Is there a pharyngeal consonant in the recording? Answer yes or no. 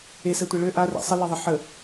yes